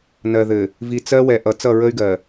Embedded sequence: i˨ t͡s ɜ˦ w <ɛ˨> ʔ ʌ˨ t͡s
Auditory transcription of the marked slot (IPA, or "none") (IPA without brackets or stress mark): ɛ˨